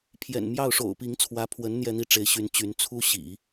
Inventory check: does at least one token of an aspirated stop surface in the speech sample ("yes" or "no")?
yes